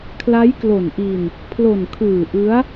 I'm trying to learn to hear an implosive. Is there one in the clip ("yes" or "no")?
no